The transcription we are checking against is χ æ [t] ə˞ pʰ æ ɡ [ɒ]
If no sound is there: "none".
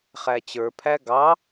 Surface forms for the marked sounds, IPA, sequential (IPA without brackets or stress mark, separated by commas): t͡ɕ, ɑ